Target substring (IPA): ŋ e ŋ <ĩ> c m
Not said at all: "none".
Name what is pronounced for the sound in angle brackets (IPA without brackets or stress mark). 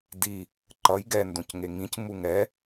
ĩ